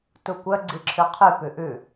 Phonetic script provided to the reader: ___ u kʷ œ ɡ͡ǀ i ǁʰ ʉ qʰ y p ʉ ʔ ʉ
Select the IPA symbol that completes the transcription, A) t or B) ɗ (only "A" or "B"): A